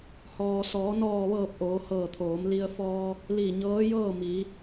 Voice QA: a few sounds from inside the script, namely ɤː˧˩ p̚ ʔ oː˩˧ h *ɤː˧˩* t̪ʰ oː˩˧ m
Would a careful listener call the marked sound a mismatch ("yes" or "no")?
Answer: no